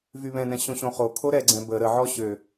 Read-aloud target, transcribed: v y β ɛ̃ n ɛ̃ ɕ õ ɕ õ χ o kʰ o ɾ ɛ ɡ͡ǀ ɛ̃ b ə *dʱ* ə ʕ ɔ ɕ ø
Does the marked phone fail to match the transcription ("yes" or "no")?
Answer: yes